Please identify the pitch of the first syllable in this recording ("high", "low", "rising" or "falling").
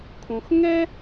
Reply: low